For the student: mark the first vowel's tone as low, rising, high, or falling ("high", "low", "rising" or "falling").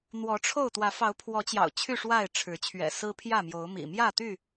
rising